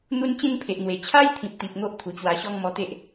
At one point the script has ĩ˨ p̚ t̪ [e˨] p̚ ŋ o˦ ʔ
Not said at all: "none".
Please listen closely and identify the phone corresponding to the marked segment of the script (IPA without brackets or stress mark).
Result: i˨